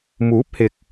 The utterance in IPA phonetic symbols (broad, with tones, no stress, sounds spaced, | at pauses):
m uː˨˥ p̚ h ɪ˨ k̚